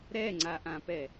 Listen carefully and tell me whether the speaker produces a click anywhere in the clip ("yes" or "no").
yes